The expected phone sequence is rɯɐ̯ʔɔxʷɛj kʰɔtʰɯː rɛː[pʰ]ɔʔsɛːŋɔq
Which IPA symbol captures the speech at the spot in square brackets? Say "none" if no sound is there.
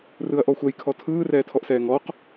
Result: tʰ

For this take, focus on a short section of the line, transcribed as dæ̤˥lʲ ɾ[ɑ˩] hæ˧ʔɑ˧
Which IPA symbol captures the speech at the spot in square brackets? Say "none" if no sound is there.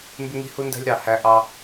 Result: ɑ˩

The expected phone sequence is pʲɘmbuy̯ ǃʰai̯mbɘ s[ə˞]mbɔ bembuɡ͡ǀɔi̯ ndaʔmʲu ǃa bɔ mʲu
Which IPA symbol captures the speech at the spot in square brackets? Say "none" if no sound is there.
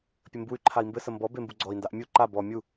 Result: ə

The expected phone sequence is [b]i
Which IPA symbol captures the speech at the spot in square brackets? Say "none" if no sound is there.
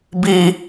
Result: b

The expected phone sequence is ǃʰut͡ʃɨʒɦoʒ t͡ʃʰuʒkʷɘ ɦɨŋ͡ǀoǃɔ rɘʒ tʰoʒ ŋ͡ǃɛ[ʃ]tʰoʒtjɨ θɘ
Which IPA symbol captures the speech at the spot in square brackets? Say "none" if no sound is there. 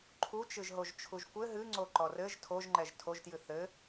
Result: ʒ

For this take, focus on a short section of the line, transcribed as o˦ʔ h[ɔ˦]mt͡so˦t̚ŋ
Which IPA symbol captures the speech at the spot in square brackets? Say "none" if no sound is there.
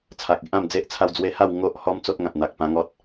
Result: ɔ˦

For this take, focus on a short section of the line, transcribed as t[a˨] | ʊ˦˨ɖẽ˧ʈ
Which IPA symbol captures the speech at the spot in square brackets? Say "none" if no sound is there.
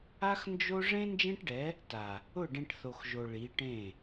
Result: a˨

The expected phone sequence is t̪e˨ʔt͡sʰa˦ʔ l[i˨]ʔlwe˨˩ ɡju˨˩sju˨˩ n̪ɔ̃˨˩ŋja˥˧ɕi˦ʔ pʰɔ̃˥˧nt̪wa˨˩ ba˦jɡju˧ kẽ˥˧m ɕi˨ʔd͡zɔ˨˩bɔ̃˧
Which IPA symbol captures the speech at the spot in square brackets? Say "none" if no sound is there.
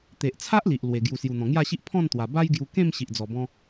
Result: i˨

